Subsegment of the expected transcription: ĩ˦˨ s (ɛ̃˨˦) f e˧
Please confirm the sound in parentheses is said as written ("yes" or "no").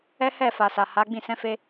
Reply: yes